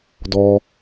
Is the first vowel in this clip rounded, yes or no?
yes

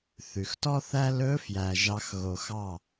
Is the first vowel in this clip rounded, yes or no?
yes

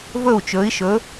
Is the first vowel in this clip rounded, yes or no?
yes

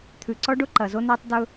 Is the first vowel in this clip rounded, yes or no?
yes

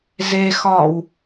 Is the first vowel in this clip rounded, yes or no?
no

